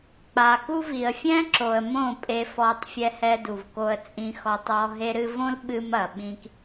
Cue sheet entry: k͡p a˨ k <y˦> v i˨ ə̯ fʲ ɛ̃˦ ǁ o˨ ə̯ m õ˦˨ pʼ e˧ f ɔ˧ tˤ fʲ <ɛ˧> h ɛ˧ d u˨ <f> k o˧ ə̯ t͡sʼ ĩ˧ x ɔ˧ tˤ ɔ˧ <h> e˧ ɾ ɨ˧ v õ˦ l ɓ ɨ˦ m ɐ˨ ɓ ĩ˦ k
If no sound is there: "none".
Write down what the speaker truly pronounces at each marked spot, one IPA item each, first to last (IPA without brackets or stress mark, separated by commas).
u˦, ɛ˧, v, ɦ